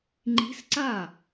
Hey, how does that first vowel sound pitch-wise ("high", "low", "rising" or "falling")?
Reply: rising